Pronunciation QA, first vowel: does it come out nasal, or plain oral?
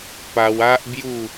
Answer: oral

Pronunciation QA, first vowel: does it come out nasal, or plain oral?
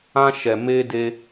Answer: nasal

